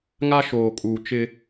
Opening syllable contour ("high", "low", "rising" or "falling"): high